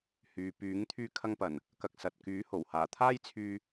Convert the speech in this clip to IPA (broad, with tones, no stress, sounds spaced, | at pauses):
h yː˨ p yː˨˥ ŋ t̪ʰ yː˧ kʰ ɐ˧ ŋ p ɐ˨˩ n | k ɐ˨ k̚ s ɐ˨ t̚ k yː˨˥ h o˨˩ w h aː˨˩ t̪ʰ aː˥ j t͡sʰ yː˧